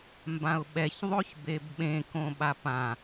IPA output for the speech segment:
m b ã ʊ̯ ɓ ɛ ç ðˤ o ç b e b ɓ ẽ k õ ɓ a p ã

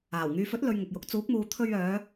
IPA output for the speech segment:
aː˨˩ w ŋ yː˨ f ɵ˨˥ t̚ l ɵ˨ ɥ ŋ ʊ˨ k̚ j ʊ˨˥ k̚ t͡s uː˨˥ k̚ m uː˨ t̪ʰ ɵ˧ ɥ œː˨˧

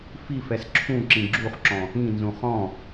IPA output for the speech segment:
f i f ɛ s ǁʰ ũ ǁ ĩ ɡ͡ǁ u χ ǁ ɔ̃ | ĩ n z ũ χ ɔ̃

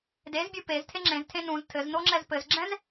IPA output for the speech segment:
d e z bʲ u p e z tʰ e ŋ͡ǁ ẽ z tʰ ẽ n ũ z tʰ ɘ z n o ŋ͡ǁ ɛ z p ɘ z ɡ͡ǁ ɛ̃ z

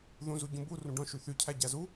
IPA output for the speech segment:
ð ũ z u ɟ ũ b u r ũ ɖ ɔ̃ ʃ y θ y cʰ æ ɟ æ z u

